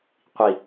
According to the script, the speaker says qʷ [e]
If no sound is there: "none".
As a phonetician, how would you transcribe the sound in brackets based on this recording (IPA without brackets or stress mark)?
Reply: i